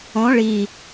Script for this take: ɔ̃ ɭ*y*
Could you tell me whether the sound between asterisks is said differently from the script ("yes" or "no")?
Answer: yes